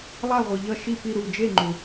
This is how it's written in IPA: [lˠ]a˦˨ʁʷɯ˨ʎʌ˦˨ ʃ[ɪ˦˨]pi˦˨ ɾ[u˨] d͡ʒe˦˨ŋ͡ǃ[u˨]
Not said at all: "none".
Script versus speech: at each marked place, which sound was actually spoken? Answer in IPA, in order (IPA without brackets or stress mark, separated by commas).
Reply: lˠ, i˦˨, u˦˨, u˨